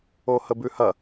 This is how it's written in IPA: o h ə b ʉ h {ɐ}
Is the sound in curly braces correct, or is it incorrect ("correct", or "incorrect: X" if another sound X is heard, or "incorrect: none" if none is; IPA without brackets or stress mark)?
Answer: correct